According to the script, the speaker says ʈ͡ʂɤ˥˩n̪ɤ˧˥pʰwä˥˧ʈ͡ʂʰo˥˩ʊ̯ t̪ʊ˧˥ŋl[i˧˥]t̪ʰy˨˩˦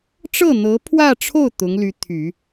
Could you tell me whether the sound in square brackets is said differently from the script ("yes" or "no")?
yes